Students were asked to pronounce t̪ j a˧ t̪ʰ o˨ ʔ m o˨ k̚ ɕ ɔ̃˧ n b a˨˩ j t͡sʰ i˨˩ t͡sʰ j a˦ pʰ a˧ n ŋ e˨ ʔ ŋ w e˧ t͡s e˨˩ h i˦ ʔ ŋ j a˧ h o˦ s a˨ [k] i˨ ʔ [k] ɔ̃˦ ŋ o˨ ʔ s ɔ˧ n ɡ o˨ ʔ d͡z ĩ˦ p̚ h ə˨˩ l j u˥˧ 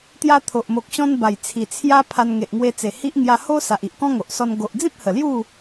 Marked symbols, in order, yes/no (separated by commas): no, yes